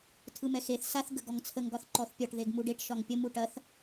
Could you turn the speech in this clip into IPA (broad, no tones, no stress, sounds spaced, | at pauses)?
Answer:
tʰ ɯ m ɛ x e θ s a θ ɡ ə ɡ ɔ ŋ t͡sʰ ə ŋ ɡ ɒ θ ǃ ɔ θ pʲ ɒ ʈ ð e ɡ m u ɖ e ʈ ʃ ɒ ŋ pʲ ə m u ʈ ɐ θ